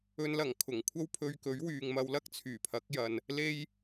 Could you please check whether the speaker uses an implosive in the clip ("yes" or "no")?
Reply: no